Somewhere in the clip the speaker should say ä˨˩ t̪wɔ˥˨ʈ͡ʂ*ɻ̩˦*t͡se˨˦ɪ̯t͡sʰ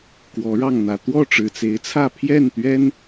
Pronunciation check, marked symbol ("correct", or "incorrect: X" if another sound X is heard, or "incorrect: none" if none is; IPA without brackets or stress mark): incorrect: ɻ̩˨˩